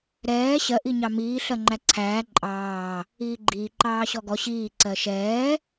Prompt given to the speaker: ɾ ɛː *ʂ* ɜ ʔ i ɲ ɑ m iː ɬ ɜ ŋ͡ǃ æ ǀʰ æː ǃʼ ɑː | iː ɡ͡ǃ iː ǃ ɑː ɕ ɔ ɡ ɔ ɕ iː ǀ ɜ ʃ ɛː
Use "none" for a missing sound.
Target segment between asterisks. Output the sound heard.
ɕ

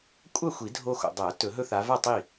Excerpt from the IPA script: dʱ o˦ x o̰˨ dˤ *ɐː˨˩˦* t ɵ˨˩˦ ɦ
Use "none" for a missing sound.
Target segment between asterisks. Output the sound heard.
ɐː˨˩˦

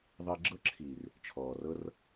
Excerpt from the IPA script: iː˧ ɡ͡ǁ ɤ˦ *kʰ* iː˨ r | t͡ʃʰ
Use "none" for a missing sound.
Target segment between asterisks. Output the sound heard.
ǁʰ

